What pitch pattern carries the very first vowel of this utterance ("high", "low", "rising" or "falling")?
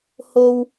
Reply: high